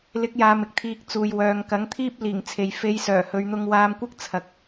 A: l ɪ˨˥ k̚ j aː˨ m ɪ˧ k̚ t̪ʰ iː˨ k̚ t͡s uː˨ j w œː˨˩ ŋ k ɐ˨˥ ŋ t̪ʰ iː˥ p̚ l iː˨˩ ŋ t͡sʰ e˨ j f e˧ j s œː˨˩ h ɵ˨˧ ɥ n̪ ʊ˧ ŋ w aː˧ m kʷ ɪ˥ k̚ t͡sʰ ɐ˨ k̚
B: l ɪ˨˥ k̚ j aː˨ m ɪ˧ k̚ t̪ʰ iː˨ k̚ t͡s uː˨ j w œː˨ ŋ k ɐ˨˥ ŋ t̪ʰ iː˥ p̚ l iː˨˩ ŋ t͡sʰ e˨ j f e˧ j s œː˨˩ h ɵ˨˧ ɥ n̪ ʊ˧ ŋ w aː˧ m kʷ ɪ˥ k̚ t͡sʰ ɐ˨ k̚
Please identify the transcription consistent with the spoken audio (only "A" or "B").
B